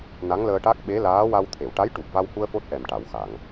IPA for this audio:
n a˧˥ ŋ l əː˧ ʈ a˦˥ k̚ ɓ e˧˥ l aː˧˥ w a˧ w t̪ʰ e˨˩˨ w ʈ a˧˥ j ʈ u˨˩ p̚ v a˧ w h u˧ ə̯ f o˦˥ t̚ ʔ ɛ˨˩ m ʈ a˨˩˨ w x a˨˩˨ ŋ

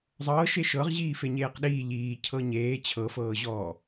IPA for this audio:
zˤ ɤː ʃ e ʃ ɤ ʁ ʑ iː f e ɲ eː q ɗ iː ʎ iː cʰ ɤ ɲ eː t͡ɕʰ ɤ f ɤː ʑ ɔː

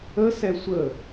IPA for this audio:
ə s ɛ sʷ ə

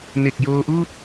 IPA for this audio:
n e˨˩ k̚ j oː˧ ʔ uː˥˩ t̚

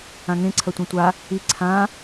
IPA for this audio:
ã ŋ ẽ ǀʰ ɐ tʷ ẽ tʷ a | i ǀʰ ã

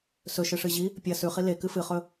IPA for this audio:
s ɵ ʃ ɨ ʂ ɨ ʑ i | pʲ ɐ s ʉ χ i l e k ɨ f ɨ χ ɵ

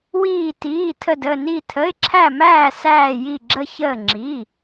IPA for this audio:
w iː˧˩ t iː˩˧˩ tʰ ə˧˩ d ə˧˩ n i˧˩ tʰ ə˩˧˩ ɪ̯ ǁʰ æ˧˩ m æː˧˩ s æː˧˩ j i˧˩ ɡ͡ǁ ə˧˩ ç əː˧˩ ŋ͡ǁ i˩˧˩

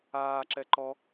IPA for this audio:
aː ǁ ɛ ǃ ɔ

